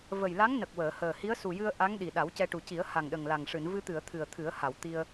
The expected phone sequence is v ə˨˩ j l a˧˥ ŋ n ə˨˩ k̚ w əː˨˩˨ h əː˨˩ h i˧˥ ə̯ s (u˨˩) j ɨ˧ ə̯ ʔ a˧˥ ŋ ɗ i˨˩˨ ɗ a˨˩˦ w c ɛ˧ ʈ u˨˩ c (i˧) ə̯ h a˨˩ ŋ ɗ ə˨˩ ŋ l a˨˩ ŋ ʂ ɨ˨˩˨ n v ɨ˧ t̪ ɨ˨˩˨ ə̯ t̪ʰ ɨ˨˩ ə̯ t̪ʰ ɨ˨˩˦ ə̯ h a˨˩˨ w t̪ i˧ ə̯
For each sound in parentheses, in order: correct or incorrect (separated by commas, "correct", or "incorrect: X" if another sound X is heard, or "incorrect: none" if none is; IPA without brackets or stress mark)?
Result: correct, incorrect: i˨˩˦